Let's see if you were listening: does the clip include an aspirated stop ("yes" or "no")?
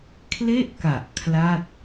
yes